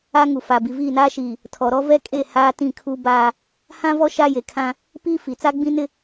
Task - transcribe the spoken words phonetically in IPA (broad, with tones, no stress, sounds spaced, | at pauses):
a˦ ŋ u˨ f a˨ b i˨ v iː˦˨ n aː˦ ʃ iː˨ | tʰ ɔ˨ ɾ ɔ˦ v ɛ˦ kʼ e˦˨ h aː˦ t ĩ˦˨ kʰ u˦ b aː˦ | h ã˦ v ɔ˦ ʃ a˦ j e˨ kʰ ã˦ | p i˦ f i˨ t͡s a˦ ɡ͡b ĩ˦ n ɪ˦